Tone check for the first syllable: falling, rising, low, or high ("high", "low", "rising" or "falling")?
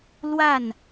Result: falling